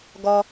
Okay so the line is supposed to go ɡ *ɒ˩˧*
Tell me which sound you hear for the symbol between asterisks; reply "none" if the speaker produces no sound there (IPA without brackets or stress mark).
ɒ˩